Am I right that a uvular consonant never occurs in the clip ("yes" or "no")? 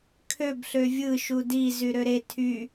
yes